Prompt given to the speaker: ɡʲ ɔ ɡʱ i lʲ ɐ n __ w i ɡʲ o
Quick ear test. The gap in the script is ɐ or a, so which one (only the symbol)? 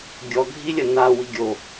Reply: a